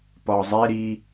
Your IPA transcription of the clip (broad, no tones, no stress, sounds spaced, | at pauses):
p ɒ zˤ e ɾ i